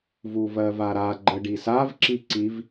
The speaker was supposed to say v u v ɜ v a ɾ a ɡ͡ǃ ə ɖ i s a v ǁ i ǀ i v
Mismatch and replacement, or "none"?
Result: none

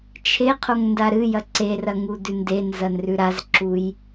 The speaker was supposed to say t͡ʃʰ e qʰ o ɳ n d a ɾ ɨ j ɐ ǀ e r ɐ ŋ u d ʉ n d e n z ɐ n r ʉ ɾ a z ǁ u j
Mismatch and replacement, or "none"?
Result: ɳ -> ŋ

